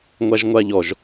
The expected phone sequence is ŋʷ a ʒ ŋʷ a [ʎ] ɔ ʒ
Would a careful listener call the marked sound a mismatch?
no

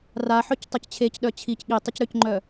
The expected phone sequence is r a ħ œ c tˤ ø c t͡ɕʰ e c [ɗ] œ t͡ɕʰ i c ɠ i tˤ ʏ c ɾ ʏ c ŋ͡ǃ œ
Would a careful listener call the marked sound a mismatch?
no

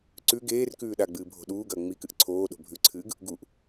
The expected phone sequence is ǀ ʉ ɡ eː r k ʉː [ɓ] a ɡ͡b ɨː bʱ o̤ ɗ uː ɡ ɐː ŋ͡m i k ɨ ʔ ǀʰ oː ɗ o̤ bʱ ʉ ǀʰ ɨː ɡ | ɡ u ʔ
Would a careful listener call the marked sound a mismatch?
yes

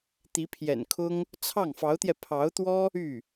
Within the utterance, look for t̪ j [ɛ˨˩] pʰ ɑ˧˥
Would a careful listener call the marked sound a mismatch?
yes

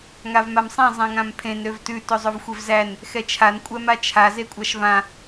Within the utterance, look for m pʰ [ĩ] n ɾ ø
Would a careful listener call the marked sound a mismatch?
yes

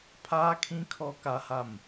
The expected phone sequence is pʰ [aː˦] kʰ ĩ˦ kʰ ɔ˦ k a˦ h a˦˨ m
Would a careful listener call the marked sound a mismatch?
no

